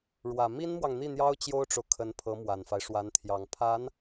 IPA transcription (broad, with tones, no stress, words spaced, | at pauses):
ɻwä˨˩ mi˥nmwɑ˨ŋ n̪i˥˩n̪jɑ˥ʊ̯ t͡ɕjo˥ʊ̯ʈ͡ʂo˨ʊ̯ kʰə˧˥npʰɤ˧˥mwa˨˩nfa˦ɪ̯ ʂwa˧˥nt̪ʰjɑ˨˩ŋ pʰa˧˥n